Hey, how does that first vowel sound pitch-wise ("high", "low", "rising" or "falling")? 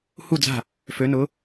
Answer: falling